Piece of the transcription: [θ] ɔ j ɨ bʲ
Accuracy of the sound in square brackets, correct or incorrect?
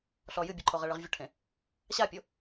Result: incorrect